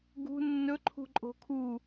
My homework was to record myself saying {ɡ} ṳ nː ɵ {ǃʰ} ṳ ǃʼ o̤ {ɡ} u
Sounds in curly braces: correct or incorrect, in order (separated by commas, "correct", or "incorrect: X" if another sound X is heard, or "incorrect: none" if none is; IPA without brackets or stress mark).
correct, correct, incorrect: kʰ